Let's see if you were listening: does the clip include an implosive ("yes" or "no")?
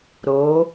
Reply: no